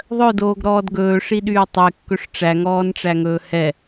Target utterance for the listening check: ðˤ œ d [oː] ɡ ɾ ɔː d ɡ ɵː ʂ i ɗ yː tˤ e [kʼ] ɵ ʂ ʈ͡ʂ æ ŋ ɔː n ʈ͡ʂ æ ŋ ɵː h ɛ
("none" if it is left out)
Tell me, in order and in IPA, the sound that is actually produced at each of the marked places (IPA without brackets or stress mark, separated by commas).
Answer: oː, kː